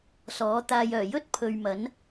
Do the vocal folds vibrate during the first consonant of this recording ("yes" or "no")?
no